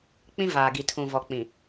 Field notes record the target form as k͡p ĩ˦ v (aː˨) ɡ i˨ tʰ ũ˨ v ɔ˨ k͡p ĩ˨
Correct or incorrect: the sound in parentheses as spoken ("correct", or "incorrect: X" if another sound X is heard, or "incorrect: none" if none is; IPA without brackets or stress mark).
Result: correct